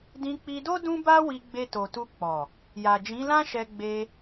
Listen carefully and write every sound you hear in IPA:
d ĩ˧ k͡p i˧ d o˦ d ũ˦ b a˦ w i˧ ɡ͡b e˧ t o˨ t u˧ k͡p ɔ˨ | j a˨ d͡ʒ ĩ˨˦ l ã˦ ʃ ɛ˧ ɡ͡b e˧

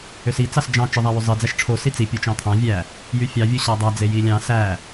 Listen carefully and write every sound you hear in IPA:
ø s i t͡s ɑ s d͡ʒ ɑ̃ t͡ʃ ɯ ðˤ æ w y zˤ i d͡z æ ʃ ʈ͡ʂʰ o s i t͡s i pʲ u t͡ʃ ɑ̃ t̪ʰ ɑ̃ vʲ æ | j y fʲ ɑ vʲ u ɕ æ dˤ æ d͡z e j i lʲ ɑ̃ s æ

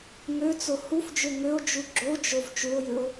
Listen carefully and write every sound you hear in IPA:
ŋ ø t͡s o h u f d͡ʒ ø ŋ ø o̯ d͡ʒ u ɡ͡ǁ o d͡ʒ o v t͡ʃ u o̯ j ɨ o̯

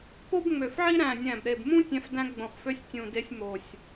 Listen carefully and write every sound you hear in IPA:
p o˦ b ŋ͡m ø˨˩ f ʕ i˦ ɾ æ̃˨˩ nʲ æ̃˨˩ b ɾ e˨˩ b m ũ˦ tʲ æ̃˦ f d æ̃˦ ɡ͡b õ˨˩ χ f ø˦ sʲ tʲ ũ˨˩ d e˦ sʲ m o˨˩ sʲ

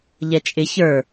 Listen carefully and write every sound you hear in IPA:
ʎ ɛ t͡ʃʼ ɪ ç ə˞

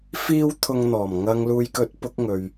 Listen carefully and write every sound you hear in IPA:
f iː˥ w t̪ʰ ʊ˧ ŋ n̪ ɔː˨˩ m ŋ ɐ˨ ŋ l uː˨ j k ɵ˨˥ t̚ p ʊ˨˥ k̚ ŋ ɵ˨ ɥ

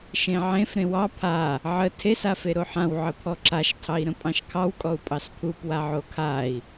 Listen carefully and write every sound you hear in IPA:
ʃ ẽ ʕ ẽ f ɾ ẽ w ɑ pʰ a | ʕ ə tʰ e s a f e ɾ o ħ ã w ʕ ə pʰ ɔ ǁ a ʃ tʰ ɑ i̯ ɾ ə̃ pʼ ɑ̃ ʃ kʰ ɑ w kʼ ɔ u̯ pʼ ɑ s pʰ u p w a ʕ o kʰ a i̯

